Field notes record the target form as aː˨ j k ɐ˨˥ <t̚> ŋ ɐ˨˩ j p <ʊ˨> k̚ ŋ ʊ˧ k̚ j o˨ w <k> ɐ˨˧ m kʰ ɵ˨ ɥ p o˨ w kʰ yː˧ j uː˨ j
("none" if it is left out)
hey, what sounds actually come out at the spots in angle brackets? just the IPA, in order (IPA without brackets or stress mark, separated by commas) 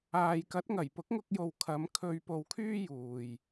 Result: t̚, ʊ˨˥, kʰ